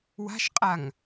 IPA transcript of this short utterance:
wa̤ʃqʼaŋ

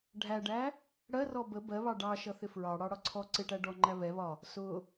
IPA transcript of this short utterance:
ɖʱæɖæ | ɽɜrɔ bə bɜβɑ ɖɑ ʃʌθɪfɹɑ ɽɑɽɒǀʰɔ ǀɪʈæ ɖɔŋ͡ǃæ βɛβɒ | sʊ

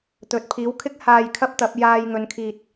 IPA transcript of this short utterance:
t̪ɵ˨t̚pʰiː˨˥wkʰɪ˥k̚ haː˧jkʰɐ˥p̚t̪ɐ˨˥p̚ jaː˧jŋɵ˨˧nkʰiː˨t̚

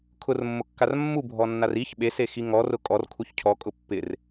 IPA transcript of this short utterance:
kʰʊrmːʊkːar mːubʱɔnːar iç ɓesexi ŋɔrʊ kʼɔrkʰuç cʰɔkʼʊ pːɪr

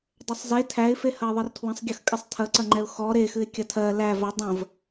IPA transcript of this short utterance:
dˤəsˤze tʰæɪ̯fe hɐɪ̯ðˤɨrtʰwə̃sˤɡʲɐx kʼɨsˤtʰɐǀɐŋ͡ǃɛʊ̯ xɔ ɾexɨɪ̯ kʲɐtʰɜ læ vɐ dˤə̃v

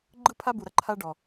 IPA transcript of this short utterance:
ɡ͡ǃɯ˦pʰa˦bu˨ɾɐ˦ ǃʰa˦ɖɔ˨

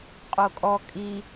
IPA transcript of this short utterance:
qʼokʼɔ kʼi

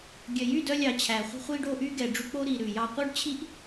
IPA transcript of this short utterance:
ɡʲœ˨jy˦˨dœ˧lʲɑ˨ t͡ɕʰæ˨ χʷi̤˧χʷiː˧ɖo˧ʔyː˧ ɡɛ˨ɖ͡ʐʉ˧k͡po˦ɾiː˨ ɾʉ˨jɑ˧ qʷœ˦ɖt͡ɕʰi˦ʔ

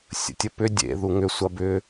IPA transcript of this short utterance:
sʲə̰tʲəpʏ dʲḛ ðuŋʏ sʷɐbʏ

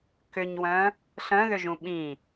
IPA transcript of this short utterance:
kʏɲwœ̃ | ɬœ̃ðʏʒũ ɓĩ

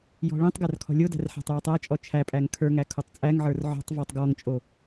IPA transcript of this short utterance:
jɔ̤ɭĩtˤɡær kʰɔ̤lʲodæ̤r ħæ̤tˤjɔtˤæt͡ʃʼɔ t͡ʃʰæpʼæŋ kʰə˞ ŋækʰotˤt͡sʼæŋʕə˞r ʕɔ̤tˤ vɔtˤɡɔŋt͡ʃʼo

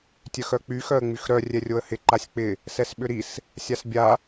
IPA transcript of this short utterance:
tʲœxœk͡py xœə̯ŋ͡myxɾœ rʲɛrʲoə̯hɪ ǃasʲk͡pɪ | sɛsɓʏɾis | sʲasbʲa

